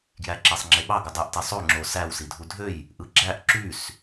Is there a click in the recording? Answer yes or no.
yes